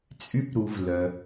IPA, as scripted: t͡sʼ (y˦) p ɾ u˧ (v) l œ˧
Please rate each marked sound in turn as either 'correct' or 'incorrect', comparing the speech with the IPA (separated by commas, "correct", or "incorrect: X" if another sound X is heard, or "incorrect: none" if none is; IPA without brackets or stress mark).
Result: correct, correct